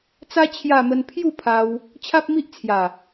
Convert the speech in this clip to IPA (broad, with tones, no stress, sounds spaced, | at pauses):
t͡s a˦ t͡ɕʰ j a˥˧ m ə˦ n pʰ j u˥˧ pʰ a˧ w | t͡ɕʰ a˦ p̚ m i˦ ʔ t͡sʰ j a˨˩